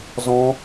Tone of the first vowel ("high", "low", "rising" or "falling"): high